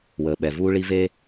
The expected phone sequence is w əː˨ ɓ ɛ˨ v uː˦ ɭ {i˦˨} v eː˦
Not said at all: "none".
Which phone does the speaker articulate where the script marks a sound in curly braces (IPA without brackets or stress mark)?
i˦